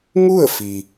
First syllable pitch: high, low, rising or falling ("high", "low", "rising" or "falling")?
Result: falling